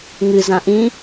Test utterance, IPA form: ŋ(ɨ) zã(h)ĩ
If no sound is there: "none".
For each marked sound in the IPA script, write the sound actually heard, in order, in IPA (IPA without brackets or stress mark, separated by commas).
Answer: ɨ, ʔ